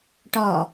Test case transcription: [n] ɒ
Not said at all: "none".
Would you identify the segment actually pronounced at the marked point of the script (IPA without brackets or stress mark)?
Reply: ʈ